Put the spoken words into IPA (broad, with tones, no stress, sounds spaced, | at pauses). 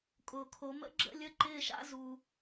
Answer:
kʼ ʊː˨ kʰ o˨˦ m ə̰˥ ɡ͡ǁ ə̰˥˨ lʲ ə˧˥˧ ǃ ɪː˥˨ ʃ a̰˥ z u˨